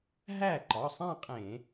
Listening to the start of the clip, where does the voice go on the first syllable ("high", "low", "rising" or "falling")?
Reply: falling